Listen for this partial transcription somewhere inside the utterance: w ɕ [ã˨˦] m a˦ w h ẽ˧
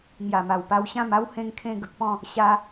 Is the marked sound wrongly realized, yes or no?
yes